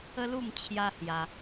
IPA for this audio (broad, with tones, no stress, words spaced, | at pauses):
ə˦lu˥˧m t͡ɕʰja˦hja˧